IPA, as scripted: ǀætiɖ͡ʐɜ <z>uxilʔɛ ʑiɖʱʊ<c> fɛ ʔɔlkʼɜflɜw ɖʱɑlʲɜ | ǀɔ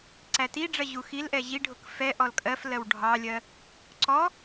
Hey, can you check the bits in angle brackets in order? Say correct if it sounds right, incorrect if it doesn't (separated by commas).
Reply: incorrect, incorrect